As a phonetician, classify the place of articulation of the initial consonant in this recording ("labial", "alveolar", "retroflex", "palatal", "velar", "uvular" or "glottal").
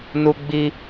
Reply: alveolar